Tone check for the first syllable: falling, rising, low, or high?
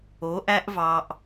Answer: rising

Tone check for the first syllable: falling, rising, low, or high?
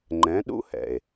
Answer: rising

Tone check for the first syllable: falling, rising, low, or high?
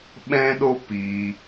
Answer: high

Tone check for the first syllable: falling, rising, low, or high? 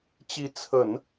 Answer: rising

